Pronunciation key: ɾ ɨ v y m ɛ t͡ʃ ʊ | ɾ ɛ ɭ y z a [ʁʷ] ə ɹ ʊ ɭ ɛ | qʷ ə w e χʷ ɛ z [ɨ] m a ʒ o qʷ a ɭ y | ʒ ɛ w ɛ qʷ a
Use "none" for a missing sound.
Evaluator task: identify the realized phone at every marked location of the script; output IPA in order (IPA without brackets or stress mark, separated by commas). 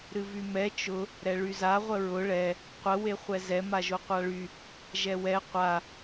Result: ʁʷ, ɛ